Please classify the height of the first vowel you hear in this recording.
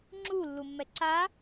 high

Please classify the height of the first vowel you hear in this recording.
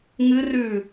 high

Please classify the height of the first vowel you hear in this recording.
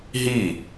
high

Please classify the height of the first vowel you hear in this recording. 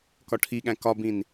low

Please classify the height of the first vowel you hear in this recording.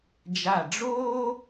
low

